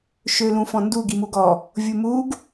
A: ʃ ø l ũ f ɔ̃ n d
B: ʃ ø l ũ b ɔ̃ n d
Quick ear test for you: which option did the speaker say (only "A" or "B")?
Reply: A